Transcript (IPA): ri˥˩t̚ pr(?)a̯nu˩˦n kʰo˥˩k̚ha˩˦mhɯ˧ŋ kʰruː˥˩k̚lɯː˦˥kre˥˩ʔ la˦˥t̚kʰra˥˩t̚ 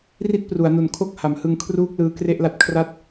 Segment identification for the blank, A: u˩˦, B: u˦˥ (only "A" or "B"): A